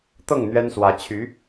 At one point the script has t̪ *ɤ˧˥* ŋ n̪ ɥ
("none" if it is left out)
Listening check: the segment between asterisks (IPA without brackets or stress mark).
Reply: ɤ˥˩